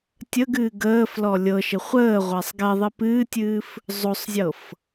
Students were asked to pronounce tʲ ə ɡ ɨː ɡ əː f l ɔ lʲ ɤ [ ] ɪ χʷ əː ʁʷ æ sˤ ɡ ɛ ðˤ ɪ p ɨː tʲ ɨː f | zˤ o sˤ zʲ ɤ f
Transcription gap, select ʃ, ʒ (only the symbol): ʃ